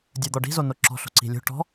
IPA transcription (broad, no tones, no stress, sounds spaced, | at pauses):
dʲ ə˞ d̪ ɔ ɖ i̤ z o n o ǁ ɔ̤ ɬ o̤ ǀ i̤ lʲ o̤ ʈ ɔ̤